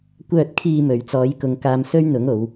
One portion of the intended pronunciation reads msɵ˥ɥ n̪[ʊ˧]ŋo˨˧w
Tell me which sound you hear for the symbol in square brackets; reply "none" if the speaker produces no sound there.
ʊ˨˥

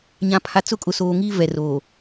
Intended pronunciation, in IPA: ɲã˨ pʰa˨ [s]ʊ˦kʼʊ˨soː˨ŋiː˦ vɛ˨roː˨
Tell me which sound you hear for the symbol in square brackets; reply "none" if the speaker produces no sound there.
t͡s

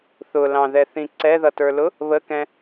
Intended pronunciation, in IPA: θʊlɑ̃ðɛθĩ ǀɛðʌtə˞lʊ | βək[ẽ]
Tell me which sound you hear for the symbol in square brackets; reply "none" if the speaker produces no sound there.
ɛ̃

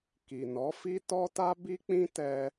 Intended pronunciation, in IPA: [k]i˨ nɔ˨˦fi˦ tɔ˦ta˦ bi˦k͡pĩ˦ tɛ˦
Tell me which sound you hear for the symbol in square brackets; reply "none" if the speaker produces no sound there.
k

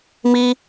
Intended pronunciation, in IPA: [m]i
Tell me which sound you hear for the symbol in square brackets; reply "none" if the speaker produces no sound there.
m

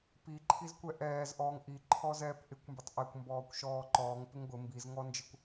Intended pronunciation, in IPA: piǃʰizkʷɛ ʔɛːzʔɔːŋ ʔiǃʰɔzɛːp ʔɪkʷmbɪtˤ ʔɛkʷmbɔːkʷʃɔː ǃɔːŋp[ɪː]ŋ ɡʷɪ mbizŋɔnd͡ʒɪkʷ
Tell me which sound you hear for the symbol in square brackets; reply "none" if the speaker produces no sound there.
ɪ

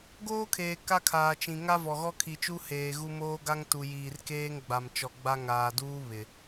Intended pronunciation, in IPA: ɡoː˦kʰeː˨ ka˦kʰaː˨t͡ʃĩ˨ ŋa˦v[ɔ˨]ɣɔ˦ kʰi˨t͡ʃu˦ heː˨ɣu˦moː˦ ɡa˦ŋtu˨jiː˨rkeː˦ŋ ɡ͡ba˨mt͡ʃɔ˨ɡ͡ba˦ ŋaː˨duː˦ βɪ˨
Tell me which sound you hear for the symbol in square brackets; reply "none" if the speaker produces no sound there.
ɔ˨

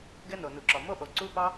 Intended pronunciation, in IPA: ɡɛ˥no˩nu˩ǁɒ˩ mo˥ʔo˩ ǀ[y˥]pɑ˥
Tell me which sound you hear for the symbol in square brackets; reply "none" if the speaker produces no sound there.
u˥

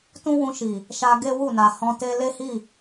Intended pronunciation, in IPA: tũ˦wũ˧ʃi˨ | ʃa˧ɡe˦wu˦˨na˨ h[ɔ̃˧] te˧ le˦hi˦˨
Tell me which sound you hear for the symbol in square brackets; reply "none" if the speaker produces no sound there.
ɔ̃˧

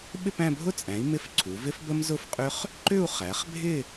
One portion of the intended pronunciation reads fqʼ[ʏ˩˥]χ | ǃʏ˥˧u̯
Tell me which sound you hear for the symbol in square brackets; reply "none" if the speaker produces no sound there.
ʏ˦˥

